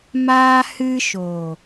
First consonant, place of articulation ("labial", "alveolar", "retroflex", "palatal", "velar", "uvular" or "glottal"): labial